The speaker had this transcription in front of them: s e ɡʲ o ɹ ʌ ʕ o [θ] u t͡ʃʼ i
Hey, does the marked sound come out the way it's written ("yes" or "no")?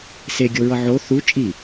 yes